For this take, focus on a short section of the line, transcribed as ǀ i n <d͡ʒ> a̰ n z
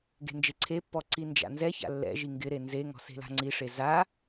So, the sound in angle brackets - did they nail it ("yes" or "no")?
yes